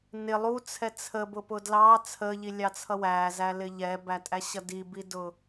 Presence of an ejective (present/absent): present